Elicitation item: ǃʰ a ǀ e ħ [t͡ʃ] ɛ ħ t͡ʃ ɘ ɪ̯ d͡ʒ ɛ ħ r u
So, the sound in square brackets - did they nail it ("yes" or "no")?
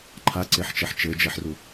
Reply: yes